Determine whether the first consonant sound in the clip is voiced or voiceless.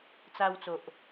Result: voiceless